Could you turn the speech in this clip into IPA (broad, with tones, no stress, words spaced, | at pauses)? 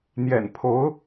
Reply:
n̪jɛ̰˨˩npʰo˧˥ʊ̯